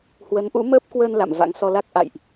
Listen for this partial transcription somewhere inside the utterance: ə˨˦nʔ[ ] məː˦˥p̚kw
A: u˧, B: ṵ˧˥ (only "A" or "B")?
B